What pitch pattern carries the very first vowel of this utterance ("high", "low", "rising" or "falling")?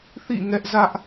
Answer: falling